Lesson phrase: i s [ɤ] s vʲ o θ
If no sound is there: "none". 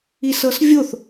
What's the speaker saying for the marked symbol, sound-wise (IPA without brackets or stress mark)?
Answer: ɤ